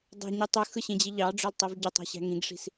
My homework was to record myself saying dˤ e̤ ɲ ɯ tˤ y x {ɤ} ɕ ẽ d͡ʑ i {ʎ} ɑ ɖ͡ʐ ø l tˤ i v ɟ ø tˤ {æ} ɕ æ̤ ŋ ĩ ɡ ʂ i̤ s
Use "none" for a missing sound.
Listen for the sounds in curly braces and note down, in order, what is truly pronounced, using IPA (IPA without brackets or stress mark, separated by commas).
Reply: ɯ, ʎ, æ̤